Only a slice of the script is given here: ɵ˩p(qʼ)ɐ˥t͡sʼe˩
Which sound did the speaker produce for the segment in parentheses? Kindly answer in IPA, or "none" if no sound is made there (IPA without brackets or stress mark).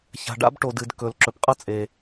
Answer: qʼ